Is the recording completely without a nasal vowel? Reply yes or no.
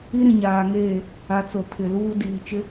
no